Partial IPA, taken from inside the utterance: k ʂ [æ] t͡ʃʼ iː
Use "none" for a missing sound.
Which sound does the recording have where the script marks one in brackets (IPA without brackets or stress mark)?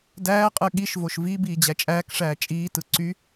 æː